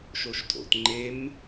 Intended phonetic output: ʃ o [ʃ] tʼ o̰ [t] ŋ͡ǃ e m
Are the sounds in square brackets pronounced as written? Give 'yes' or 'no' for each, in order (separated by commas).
yes, yes